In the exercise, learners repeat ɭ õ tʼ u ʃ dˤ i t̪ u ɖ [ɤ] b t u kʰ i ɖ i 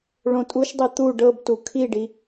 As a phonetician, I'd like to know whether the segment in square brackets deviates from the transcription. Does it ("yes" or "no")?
no